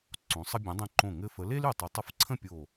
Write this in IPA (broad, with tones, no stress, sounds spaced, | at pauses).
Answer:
ǀ õ˩˧ sˤ ə˧ bʲ ũ˩˧ dˤ ĩ˧˩ ǃ õ˧˩ ŋ ɘ˧ f ə˩˧ l e˥ l y˧˩ tˤ e˩˧ tˤ ə˩˧ f ǀʰ ə̃˥˧ pʲ o˧˩